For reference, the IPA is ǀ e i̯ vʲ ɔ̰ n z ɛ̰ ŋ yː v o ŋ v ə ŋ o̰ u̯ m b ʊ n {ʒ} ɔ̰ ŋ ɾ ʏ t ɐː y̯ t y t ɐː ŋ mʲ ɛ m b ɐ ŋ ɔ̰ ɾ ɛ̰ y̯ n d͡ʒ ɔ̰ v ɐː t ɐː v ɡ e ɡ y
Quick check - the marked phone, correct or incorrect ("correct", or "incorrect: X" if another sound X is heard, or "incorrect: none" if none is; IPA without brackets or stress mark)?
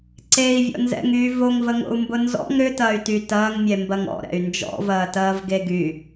incorrect: z